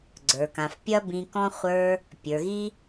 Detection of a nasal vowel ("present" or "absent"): present